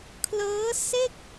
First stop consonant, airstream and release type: aspirated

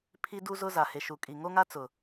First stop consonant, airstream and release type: aspirated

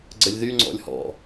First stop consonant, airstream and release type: click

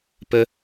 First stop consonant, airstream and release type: plain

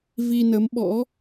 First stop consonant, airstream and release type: implosive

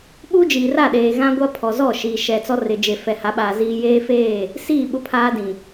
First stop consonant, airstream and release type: implosive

